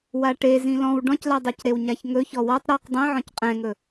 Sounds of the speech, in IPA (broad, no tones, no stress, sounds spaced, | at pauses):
w a ʈ e z ĩ l ɔ̃ w ɖ ɔ̃ c l a dˤ e c ɾ e w ɲ a ç ŋ ɵ ç ɔ w ɔ tˤ ɾ ɔ q dˤ ĩ ʕ ɔ̃ c qʼ ɛ̃ ŋ ɵ